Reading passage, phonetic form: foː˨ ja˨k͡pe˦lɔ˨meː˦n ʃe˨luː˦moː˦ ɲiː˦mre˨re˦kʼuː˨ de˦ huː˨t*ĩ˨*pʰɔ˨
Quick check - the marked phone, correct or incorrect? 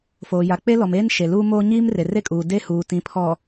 correct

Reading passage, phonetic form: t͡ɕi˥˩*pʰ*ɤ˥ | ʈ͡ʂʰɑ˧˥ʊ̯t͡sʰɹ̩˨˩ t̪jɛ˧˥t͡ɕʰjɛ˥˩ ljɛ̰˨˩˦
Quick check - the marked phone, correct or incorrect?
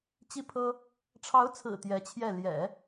correct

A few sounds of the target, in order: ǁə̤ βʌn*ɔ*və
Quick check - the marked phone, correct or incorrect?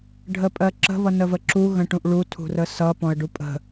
incorrect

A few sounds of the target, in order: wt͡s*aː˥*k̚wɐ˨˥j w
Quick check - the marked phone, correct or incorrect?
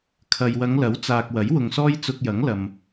incorrect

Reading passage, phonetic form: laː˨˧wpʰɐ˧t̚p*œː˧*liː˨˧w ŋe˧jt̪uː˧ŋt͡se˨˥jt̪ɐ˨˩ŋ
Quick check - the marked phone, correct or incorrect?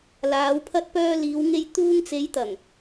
correct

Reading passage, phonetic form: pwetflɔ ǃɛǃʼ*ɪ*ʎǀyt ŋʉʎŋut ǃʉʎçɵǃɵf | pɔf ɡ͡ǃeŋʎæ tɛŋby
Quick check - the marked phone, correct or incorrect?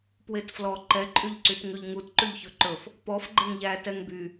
incorrect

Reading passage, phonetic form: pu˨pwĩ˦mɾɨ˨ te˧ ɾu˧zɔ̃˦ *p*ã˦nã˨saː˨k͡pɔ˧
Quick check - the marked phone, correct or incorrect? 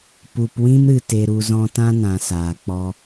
incorrect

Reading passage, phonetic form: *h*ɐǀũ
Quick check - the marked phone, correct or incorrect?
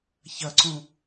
incorrect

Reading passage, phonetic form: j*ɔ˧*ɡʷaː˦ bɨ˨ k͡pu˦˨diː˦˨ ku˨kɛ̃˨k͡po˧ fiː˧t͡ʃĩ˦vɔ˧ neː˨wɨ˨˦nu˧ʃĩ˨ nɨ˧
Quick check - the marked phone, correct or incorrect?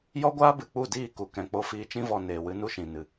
incorrect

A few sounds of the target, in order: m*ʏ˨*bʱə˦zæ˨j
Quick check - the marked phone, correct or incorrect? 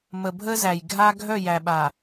incorrect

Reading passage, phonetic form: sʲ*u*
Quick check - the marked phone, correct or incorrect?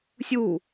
correct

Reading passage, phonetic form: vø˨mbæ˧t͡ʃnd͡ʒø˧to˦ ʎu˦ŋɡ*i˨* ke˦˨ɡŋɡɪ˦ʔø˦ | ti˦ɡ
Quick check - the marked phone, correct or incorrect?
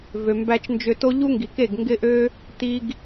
correct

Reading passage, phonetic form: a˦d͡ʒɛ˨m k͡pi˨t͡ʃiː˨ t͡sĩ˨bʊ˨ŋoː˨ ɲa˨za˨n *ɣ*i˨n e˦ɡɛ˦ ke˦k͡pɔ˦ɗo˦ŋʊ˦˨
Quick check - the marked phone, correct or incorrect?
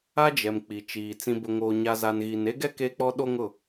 correct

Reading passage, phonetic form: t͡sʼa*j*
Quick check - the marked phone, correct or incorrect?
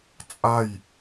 correct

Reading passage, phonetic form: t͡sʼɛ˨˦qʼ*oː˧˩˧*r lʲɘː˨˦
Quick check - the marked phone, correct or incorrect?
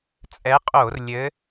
correct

